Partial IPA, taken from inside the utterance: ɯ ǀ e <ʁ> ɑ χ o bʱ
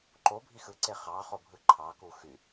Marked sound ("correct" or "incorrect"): incorrect